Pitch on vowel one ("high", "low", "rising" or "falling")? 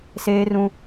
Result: high